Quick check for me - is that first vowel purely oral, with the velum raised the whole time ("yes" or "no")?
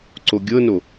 yes